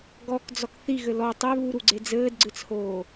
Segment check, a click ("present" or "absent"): present